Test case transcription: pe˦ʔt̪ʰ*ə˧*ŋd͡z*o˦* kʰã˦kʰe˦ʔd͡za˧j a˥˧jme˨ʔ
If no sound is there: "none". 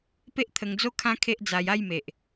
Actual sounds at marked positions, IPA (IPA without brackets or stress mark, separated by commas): ə˧, o˦